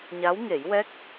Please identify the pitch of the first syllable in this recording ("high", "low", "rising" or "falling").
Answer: rising